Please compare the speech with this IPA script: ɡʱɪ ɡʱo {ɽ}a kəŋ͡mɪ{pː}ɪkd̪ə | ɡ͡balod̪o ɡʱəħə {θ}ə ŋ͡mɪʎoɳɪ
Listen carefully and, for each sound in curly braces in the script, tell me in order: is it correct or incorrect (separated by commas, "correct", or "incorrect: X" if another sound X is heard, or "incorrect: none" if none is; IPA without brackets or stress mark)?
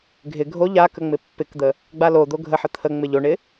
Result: incorrect: ʎ, correct, incorrect: t̪ʰ